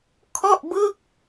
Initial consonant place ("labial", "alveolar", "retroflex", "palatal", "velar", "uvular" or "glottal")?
velar